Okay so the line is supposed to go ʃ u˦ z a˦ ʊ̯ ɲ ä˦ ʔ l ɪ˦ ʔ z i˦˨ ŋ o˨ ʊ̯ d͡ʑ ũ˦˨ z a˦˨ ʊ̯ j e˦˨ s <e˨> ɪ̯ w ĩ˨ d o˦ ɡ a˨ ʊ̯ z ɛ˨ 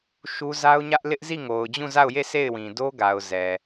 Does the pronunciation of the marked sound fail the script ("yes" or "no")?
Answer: yes